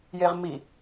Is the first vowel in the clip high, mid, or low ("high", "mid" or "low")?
mid